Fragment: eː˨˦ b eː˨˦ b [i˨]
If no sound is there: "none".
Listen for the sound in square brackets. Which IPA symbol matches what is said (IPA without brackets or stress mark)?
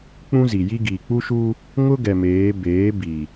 i˨